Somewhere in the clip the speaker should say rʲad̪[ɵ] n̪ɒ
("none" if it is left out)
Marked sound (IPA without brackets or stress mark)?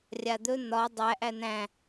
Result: ɵ